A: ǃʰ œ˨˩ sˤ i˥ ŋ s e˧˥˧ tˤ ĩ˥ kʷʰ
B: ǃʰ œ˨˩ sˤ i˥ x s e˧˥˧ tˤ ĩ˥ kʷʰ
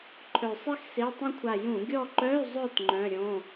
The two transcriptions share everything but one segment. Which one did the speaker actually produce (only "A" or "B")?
B